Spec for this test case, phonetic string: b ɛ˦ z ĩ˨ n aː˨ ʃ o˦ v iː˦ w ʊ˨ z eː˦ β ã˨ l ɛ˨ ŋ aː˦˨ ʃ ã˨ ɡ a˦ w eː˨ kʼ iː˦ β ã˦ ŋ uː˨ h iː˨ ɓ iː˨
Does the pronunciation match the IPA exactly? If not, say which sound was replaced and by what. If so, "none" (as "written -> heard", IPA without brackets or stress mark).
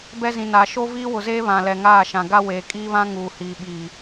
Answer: none